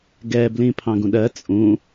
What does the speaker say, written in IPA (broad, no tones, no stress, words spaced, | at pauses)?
ɡɛblĩ pʰɑ̃ɡũɗɜ t͡sʼũ